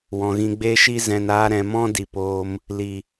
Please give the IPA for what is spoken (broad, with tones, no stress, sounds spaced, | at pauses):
w ɔ̃˨ ɣ ĩ˧ ɡ͡b e˦ ʃ i˦ z ɛ̃˨ n aː˧ ɾ ɛ̃˨ m ɔ̃˦ d i˨ p oː˧ m | l i˨